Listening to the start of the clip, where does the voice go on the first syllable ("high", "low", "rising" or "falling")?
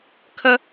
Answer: high